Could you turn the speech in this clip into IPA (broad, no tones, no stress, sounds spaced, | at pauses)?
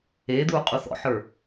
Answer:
eː d̪ uː qʼ u θ ɔ̰ ħ ə˞